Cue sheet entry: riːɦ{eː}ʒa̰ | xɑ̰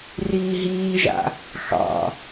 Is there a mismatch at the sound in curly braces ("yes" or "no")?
yes